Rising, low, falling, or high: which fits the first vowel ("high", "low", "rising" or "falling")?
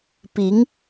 rising